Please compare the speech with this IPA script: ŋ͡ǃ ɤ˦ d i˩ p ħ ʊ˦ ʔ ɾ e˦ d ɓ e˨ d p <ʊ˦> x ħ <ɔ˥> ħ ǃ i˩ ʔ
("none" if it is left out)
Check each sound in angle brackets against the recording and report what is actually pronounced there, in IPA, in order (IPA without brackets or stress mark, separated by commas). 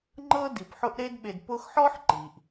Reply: ʊ˦, ɔ˥